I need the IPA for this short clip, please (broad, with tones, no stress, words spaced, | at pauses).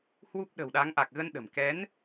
hwu˦˥p̚ɗə̤˨˩wɗa˨˦ŋ ʔa˨˩k̚ɣə˧n ɗə̤˨˩m kɛ˨˦n